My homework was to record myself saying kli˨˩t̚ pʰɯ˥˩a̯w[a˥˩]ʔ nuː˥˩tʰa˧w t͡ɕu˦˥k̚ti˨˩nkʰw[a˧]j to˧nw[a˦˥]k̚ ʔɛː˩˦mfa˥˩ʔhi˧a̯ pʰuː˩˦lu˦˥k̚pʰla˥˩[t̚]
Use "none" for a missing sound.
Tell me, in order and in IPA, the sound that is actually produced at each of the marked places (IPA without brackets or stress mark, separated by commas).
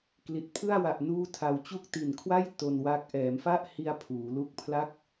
a˨˩, a˥˩, a˦˥, k̚